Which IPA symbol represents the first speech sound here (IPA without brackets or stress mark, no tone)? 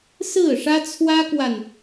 s